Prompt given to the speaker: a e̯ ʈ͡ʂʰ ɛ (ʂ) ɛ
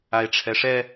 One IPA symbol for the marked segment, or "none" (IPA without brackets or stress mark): ʂ